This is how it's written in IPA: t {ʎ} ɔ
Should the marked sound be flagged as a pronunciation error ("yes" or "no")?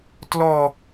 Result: yes